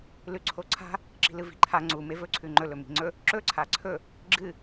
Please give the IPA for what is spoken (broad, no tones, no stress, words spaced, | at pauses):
lʉǀʰoǀʰa̤ | ǁi̤lɨvi̤ǃʰa ŋ͡ǀume vɵǀʰʉ ŋ͡ǃɵlɵ mi̤ŋ͡ǀɵ | ǁɵǀʰa ǀʰɵ | ɡ͡ǁɨ